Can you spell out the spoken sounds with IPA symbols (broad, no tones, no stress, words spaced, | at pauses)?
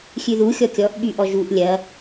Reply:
xʲʉðu xʲɔkʲɔʔ ɓyʔɔʒuʔ lʲɐ